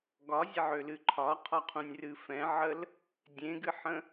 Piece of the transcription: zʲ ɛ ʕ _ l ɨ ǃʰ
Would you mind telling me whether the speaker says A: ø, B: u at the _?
A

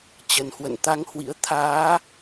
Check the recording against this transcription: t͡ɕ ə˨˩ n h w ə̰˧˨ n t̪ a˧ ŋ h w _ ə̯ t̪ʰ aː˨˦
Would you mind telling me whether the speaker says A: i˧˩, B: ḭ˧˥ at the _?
B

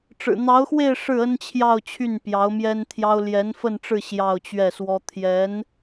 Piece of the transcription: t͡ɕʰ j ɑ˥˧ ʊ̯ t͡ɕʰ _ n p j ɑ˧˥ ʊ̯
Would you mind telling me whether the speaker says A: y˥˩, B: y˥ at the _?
A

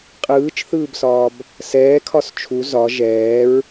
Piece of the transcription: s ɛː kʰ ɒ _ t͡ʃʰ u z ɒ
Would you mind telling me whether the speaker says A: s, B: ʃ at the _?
A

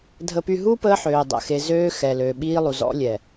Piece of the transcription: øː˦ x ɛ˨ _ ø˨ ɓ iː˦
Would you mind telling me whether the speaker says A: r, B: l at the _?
B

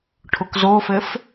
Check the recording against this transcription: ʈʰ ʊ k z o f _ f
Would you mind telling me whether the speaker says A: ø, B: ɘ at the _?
B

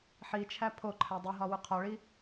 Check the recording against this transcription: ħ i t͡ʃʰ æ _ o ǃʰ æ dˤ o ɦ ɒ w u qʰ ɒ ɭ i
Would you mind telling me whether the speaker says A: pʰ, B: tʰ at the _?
A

